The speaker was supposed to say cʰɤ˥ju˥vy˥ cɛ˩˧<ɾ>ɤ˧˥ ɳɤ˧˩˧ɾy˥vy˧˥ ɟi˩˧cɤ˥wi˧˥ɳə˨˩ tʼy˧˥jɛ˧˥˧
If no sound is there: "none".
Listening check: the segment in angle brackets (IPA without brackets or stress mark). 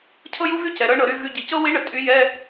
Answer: ɾ